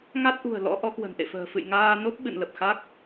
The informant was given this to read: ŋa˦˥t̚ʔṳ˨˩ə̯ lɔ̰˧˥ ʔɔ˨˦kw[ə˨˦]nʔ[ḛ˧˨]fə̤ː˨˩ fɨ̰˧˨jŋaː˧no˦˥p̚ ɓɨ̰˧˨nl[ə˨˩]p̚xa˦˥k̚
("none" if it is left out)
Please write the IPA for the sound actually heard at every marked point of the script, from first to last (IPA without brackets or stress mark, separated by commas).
ə̤˨˩, ḛ˧˨, ə˨˩